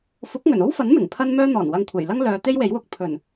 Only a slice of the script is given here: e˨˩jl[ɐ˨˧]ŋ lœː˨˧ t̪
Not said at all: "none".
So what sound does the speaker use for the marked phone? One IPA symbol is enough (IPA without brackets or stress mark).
ɐ˥